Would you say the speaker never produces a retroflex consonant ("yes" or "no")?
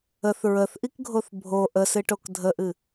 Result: no